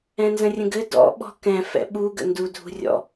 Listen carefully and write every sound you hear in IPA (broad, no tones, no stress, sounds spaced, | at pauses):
ɛ̃ n z ə̃ rʲ ə̃ ɡ ɘ d ɔ̰ ɓ ɔ̤ k ɛ̃ f ɛ̰ ɓ u ɡ ə̰ n d u dʱ ṳ rʲ ɔ̰